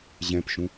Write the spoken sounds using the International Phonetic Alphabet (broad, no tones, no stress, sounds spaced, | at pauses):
ʑ ɛ̃ p ʃ ũ